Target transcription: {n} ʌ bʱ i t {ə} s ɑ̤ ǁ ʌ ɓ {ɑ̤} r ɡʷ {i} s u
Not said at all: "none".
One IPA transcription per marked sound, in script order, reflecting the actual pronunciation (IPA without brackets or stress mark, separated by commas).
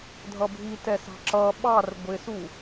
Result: dʱ, ɛ, ɑ, ɪ